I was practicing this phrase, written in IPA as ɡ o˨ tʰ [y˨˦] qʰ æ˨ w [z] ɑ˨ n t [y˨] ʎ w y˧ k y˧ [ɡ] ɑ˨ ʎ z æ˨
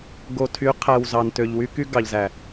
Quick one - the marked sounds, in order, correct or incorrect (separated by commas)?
correct, correct, incorrect, correct